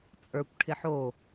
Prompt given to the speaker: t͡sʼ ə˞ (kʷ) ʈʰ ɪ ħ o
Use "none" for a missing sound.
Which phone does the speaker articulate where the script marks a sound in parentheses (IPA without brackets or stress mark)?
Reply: kʷ